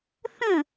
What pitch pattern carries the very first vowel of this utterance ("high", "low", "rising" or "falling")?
falling